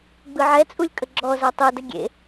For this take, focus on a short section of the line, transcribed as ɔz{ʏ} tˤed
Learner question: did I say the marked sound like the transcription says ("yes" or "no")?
no